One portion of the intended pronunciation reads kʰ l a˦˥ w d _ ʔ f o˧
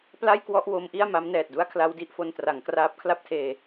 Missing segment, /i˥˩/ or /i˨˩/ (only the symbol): i˥˩